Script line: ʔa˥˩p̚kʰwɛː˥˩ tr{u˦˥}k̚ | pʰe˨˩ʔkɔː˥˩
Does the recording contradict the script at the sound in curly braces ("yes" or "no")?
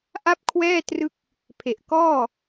yes